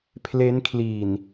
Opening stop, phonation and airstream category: aspirated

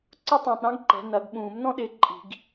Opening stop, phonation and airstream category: click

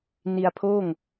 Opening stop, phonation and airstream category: aspirated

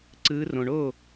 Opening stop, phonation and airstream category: click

